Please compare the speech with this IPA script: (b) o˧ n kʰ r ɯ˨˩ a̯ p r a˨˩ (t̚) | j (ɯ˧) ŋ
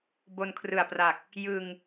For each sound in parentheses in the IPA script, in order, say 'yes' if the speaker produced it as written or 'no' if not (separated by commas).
yes, no, yes